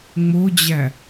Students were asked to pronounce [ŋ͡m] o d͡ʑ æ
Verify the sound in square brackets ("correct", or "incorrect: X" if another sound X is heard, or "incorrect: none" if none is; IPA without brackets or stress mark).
correct